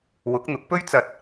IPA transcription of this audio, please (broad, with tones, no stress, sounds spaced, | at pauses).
w ʊ˨˥ k̚ n̪ ʊ˨˥ k̚ p ɵ˥ ɥ t͡s ɐ˧ t̚